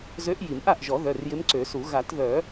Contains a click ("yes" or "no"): yes